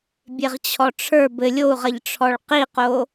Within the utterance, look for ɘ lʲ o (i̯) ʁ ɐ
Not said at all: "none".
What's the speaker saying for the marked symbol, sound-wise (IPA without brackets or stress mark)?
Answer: u̯